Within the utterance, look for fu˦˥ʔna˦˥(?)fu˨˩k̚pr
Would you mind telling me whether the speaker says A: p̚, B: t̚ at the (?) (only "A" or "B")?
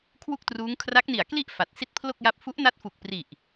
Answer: B